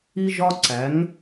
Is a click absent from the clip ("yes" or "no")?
no